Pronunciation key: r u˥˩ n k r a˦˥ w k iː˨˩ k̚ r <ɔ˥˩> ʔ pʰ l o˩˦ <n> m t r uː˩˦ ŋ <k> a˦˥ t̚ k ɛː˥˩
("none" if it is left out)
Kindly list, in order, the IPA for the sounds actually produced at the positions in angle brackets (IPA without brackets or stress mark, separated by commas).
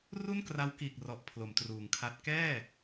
ɔ˨˩, none, kʰ